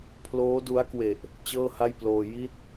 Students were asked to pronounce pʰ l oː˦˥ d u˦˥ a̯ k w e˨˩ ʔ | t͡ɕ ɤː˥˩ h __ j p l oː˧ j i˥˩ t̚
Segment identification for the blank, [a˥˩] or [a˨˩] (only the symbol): a˥˩